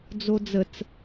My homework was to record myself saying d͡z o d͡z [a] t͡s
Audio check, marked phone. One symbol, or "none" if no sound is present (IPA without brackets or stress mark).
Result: ə